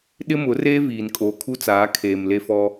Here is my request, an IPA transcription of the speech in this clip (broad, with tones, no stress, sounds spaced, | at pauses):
ɗ ɪ˦ m ʊ˨˦ r eː˦ v iː˨ n kʼ oː˨ kʰ u˦ t͡s aː˨˦ kʰ eː˨ m l e˦ f ɔ˦